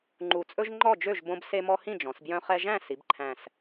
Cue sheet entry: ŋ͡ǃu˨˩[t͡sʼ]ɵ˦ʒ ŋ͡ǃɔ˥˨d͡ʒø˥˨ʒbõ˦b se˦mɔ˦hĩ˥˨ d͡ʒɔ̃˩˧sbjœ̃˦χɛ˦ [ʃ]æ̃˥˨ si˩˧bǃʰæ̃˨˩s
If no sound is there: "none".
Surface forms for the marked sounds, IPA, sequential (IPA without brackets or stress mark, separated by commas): t͡sʼ, ʒ